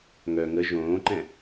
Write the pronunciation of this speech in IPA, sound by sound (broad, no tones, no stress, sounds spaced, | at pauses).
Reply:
ŋ œ ŋ ə ʒ õː ǃ ɛ̃